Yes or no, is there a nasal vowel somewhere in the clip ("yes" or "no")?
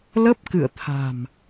no